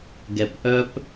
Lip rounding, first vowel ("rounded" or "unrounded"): unrounded